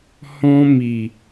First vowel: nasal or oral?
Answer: nasal